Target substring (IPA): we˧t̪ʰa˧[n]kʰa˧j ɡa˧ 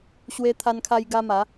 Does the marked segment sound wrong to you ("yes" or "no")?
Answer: no